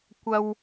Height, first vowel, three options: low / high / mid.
low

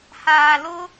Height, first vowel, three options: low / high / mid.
low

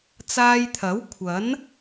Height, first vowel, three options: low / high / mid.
low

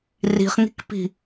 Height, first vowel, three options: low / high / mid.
high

